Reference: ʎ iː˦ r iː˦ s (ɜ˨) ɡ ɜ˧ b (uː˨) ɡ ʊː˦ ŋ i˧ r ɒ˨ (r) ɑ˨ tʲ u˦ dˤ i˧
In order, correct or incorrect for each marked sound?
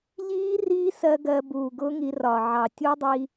incorrect: ɜ˧, correct, incorrect: ʕ

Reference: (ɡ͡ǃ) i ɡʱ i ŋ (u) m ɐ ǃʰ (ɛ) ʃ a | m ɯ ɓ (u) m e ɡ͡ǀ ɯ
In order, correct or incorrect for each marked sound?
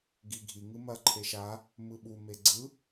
incorrect: ɡ, incorrect: ɯ, incorrect: e, correct

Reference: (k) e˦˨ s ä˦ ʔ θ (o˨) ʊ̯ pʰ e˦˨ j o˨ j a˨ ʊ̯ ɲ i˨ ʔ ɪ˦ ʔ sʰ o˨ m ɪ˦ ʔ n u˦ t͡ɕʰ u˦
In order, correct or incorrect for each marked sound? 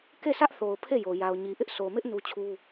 correct, correct

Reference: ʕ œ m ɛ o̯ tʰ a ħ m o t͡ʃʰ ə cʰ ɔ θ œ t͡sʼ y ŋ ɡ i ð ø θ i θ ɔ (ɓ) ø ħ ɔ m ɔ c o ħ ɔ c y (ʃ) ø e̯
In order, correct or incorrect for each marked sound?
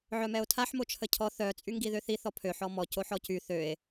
incorrect: pʰ, incorrect: θ

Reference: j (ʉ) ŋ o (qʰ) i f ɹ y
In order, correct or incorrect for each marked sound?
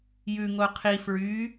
correct, correct

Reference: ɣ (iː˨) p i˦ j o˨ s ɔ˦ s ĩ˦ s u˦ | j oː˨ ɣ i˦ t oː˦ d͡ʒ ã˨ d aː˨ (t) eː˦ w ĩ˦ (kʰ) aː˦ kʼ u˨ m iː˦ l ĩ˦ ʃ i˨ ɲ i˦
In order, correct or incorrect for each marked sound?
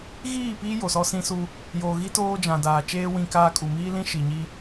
incorrect: iː˦˨, incorrect: t͡ʃ, incorrect: k

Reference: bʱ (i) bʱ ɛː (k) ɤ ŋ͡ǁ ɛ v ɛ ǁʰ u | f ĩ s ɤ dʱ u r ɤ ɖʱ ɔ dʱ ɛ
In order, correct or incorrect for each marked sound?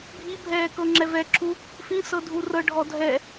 correct, correct

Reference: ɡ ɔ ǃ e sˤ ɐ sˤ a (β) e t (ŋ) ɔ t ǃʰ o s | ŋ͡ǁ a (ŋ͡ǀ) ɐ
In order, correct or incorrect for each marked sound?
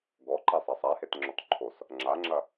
incorrect: h, incorrect: ŋ͡ǁ, incorrect: ŋ͡ǁ

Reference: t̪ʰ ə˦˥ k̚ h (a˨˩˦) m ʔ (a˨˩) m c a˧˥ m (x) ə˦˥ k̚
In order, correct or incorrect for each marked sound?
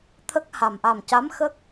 incorrect: a˨˩, correct, correct

